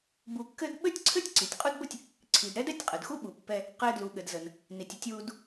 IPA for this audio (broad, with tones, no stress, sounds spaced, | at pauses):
b u˧ kː ɘ˥ d ɓ ɘ˥ tʲ ǀʰ ɘ˥ tʲ ǀ i˩ tʲ qʼ u˥ d b ə˥ tʲ | ǀʰ i˩ d ɾ ɛ˥ d ɛ˥ tʲ qʼ ə˩ d x u˥ ɓ u˩ pː ɛ˧ | q ɘ˧ d l u˩ ɠ ɘ˩ d z ə˩ n | n i˩ tʲ ə˧ tʲ w u˧ d